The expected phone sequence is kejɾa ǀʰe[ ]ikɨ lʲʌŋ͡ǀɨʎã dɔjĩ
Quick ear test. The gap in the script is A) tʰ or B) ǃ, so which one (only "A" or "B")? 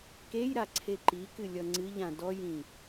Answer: B